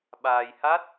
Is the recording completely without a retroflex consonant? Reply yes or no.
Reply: yes